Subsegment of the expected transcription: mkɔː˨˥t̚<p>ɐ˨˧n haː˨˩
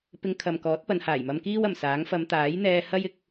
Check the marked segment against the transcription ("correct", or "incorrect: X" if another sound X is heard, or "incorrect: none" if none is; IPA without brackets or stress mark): correct